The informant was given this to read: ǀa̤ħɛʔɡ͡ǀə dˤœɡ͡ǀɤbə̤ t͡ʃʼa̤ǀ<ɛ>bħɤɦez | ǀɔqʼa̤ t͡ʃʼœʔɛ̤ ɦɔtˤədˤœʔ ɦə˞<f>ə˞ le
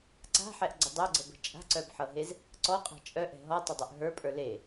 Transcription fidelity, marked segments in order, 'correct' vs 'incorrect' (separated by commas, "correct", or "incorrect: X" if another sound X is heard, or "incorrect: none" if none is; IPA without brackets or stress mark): incorrect: œ, incorrect: pʼ